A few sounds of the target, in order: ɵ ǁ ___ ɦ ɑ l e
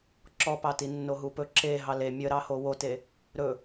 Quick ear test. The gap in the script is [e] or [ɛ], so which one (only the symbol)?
e